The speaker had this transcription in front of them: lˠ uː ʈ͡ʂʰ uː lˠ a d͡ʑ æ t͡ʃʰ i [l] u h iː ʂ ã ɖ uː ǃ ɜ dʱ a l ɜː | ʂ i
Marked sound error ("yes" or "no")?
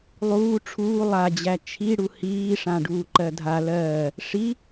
yes